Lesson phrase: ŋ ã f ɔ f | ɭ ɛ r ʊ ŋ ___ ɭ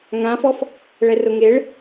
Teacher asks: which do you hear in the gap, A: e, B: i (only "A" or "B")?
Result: A